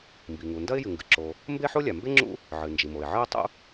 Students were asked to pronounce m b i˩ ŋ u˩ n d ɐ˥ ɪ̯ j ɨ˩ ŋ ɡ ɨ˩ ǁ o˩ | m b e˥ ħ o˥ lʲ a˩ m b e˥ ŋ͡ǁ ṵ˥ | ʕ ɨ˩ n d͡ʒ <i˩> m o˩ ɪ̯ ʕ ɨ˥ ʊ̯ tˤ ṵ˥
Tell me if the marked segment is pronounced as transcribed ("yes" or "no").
yes